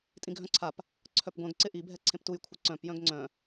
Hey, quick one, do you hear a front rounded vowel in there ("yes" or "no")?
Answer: yes